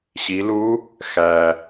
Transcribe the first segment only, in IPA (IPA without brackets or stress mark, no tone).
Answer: ɕ